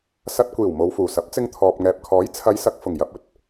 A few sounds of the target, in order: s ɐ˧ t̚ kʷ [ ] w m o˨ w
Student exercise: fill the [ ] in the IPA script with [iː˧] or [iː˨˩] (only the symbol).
iː˨˩